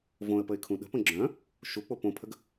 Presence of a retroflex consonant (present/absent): absent